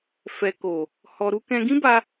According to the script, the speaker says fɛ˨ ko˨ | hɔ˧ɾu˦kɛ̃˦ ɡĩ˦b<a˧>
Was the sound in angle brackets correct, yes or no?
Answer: yes